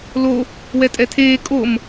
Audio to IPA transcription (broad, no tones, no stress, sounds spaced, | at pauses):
l o | w ɛ tʼ ɛ tʰ eː kʼ o m